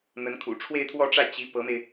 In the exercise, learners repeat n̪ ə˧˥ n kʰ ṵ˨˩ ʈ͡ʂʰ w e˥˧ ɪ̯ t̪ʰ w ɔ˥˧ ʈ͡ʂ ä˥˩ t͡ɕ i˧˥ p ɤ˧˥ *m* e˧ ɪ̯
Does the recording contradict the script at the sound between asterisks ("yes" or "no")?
no